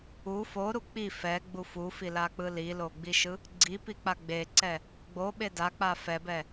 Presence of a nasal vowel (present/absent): absent